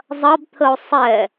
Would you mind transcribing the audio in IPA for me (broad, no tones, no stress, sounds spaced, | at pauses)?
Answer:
zˤ ɐ b t̪ʰ ə o̯ sˤ ɛ